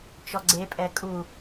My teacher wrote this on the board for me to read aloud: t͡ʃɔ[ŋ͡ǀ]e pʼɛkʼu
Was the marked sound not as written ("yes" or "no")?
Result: yes